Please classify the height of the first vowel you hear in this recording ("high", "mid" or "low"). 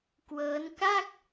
mid